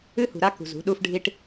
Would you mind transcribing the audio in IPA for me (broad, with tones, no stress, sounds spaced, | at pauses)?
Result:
ɨ˦ h ṳ˨ ɾ a˦ k ṳ˨ z ṳ˨˦ ɗ u˦ f ɖʱ i˦ ʈ